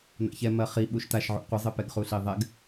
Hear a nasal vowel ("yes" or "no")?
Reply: no